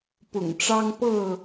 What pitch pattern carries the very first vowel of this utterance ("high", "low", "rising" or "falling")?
low